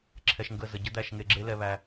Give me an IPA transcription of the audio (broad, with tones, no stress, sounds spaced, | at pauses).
ǁʰ ɛ˧ ʃ ŋ ɡ ə˦˨ z ə˨ ɟ ə˦ d̪ æ˧ ʃ ŋ e˧ ɡ͡ǁ e˦ l ɛ˧ β æ˧